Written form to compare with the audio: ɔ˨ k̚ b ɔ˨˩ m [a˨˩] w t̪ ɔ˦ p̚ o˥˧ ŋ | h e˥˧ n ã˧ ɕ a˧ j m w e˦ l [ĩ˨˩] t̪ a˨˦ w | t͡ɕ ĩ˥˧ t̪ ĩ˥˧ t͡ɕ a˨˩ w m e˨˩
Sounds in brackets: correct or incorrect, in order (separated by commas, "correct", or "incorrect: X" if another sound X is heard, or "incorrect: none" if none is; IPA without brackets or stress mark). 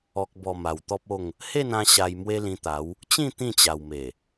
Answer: correct, incorrect: ĩ˧